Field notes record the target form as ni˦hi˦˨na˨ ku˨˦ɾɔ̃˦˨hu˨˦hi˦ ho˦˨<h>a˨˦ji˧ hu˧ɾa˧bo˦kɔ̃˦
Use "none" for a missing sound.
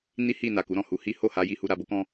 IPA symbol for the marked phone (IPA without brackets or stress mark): h